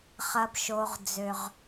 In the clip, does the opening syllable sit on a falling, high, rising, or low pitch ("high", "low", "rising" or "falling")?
high